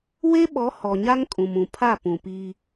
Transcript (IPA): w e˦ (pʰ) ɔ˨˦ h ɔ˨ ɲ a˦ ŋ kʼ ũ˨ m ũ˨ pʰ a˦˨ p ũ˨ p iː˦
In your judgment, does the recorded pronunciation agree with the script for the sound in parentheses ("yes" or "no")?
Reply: no